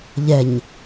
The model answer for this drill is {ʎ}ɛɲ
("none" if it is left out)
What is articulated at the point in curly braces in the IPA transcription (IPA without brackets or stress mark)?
ʎ